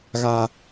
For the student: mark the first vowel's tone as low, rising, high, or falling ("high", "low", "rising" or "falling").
low